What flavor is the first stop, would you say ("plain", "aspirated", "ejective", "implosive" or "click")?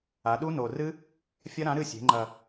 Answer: implosive